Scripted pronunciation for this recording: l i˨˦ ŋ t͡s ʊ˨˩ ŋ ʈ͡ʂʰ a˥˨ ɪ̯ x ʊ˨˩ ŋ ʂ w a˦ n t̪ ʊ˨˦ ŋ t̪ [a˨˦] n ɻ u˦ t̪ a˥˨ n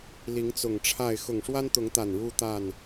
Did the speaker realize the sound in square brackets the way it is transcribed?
no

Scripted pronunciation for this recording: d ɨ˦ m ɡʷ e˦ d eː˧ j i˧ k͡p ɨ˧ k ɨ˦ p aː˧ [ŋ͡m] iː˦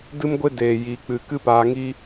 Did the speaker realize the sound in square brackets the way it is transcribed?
no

